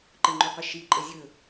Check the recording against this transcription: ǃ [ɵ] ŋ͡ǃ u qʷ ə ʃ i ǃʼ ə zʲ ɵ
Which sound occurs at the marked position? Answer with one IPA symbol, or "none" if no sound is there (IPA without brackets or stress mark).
ə